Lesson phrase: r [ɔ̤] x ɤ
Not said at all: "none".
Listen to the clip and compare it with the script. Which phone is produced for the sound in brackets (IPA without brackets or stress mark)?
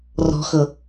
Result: ɔ̤